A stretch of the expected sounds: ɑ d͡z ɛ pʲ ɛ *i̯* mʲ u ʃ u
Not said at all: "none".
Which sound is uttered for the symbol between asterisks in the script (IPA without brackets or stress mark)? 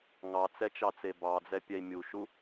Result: i̯